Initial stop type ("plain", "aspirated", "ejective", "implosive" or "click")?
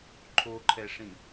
click